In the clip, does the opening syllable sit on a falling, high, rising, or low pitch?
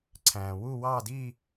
low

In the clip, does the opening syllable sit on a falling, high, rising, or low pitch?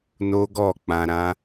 high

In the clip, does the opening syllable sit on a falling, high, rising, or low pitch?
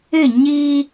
falling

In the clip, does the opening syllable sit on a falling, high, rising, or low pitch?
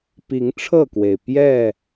rising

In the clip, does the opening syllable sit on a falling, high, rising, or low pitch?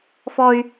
high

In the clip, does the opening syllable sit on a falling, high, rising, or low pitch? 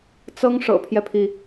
high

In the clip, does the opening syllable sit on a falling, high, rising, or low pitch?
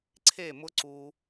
falling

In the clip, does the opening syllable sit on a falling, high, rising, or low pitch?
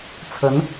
rising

